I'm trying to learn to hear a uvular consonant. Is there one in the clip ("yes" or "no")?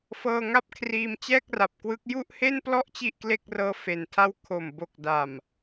no